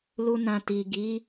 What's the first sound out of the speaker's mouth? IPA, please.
l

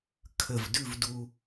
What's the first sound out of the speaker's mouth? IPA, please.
kʰ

